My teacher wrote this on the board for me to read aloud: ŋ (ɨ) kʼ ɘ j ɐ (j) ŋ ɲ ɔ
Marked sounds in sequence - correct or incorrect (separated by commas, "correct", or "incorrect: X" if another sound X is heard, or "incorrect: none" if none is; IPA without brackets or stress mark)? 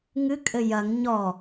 correct, incorrect: none